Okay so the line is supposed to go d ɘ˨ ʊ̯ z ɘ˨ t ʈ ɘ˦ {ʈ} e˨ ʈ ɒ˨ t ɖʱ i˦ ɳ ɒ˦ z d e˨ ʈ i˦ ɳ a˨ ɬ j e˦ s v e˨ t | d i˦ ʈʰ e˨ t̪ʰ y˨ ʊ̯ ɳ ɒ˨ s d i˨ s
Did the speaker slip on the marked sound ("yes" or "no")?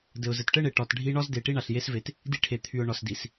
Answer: yes